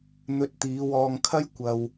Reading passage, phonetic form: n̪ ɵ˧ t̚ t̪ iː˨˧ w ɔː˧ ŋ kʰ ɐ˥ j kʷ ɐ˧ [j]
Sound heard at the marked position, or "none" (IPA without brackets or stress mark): w